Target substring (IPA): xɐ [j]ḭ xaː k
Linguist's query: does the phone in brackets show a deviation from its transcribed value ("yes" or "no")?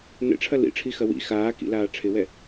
yes